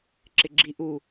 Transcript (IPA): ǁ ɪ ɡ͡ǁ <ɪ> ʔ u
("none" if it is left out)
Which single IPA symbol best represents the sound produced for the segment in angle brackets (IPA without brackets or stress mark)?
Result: i